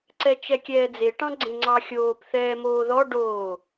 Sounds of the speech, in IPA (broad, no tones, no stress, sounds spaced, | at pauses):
ǀ ɛ t͡ʃ ɛ kʲ ɛː d͡z e ʈ ɑ̃ ɡ͡ǀ ẽ ŋ͡ǀ ɑ xʲ oː p θ ɛː m oː ð ɔ ɖ oː